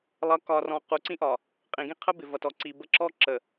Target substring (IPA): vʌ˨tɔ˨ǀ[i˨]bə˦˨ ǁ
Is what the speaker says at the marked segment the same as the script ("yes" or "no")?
yes